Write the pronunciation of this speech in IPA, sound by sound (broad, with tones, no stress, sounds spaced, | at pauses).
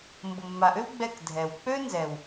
m b o˨ mː a˨ ʔ ø˦ w ɡ͡b ɛ˦˨ k dʱ ɛ˨ w k͡p ø˦ n z ɛ˨ w